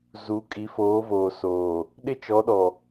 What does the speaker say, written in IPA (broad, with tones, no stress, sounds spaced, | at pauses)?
z u˨˦ kʼ i˨˦ f oː˨˦ v oː˨ s oː˨ | ɗ ɪ˦ t͡ʃ ɔ˨˦ ɗ ɔ˨